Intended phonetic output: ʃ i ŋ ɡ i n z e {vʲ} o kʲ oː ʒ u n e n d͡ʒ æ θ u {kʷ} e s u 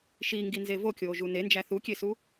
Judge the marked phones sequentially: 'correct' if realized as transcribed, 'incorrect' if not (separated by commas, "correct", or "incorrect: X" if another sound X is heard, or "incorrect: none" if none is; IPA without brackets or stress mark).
incorrect: v, incorrect: kʲ